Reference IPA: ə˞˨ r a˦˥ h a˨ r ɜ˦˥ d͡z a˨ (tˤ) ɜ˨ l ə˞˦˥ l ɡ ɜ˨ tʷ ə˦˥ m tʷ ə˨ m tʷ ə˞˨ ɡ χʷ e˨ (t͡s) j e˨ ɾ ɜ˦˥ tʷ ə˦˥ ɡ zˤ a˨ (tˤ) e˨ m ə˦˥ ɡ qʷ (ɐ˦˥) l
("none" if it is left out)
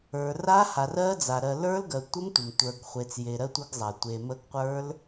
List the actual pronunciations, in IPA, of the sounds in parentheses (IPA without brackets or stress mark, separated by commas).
ɾ, t͡s, tʷ, ə˞˦˥